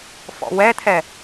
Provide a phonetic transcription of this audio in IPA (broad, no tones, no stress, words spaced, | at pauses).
fɔ̰wɛt̪ʰɛ